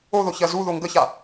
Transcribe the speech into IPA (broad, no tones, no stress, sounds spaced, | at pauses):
o ð o ç ɜ z u ð o ŋ ɡ ə ç a